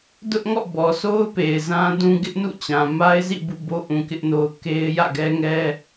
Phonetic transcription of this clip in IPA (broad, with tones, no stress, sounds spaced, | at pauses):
d ʊ˦ ʔ ŋ ɔ̰˦˨ b ɔ˨ sʰ o˦ ʊ̯ p e˨ ɪ̯ z ã˦ d ũ˦ ɡ ɪ˦ ʔ n ṵ˦˨ t͡ɕ ã˨ m a˦ ɪ̯ z ḭ˦˨ b ṵ˦˨ b o˦ ʔ ũ˨ k ɪ˦ ʔ n o˦ ʊ̯ k e˦ ɪ̯ j ä̰˦˨ ɡ ɛ˦ ŋ ɛ˦